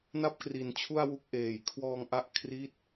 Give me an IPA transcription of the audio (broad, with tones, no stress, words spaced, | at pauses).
na˥˩p̚kri˨˩nt͡ɕʰu˥˩a̯ wu˦˥k̚ʔeː˨˩j kʰwɔː˧ŋʔa˦˥ʔ kʰri˦˥t̚